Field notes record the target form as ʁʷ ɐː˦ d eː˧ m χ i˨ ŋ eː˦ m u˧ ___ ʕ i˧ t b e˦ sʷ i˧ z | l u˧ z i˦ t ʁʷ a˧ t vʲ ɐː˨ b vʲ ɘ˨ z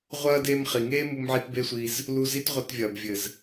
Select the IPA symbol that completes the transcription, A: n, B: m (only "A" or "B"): B